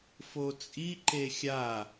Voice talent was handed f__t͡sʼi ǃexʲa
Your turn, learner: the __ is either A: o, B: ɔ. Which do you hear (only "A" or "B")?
A